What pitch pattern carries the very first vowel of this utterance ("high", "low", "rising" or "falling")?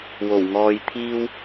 low